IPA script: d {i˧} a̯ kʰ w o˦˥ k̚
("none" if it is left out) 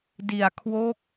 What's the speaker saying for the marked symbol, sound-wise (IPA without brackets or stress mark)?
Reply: i˧